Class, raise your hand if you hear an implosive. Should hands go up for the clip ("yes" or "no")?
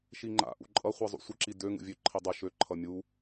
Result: no